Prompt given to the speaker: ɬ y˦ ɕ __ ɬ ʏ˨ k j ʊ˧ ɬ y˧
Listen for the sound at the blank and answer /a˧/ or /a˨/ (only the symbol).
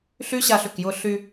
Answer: a˧